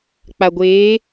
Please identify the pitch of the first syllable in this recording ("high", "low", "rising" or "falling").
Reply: low